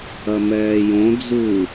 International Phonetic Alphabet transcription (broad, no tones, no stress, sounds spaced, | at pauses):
ɐ m ɛː j õ d͡z u